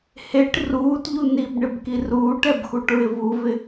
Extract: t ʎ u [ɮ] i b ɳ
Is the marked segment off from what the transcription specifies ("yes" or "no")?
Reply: yes